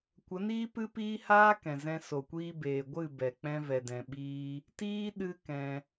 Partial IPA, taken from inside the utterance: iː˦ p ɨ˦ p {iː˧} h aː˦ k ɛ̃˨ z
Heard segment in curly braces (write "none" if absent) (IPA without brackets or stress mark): iː˦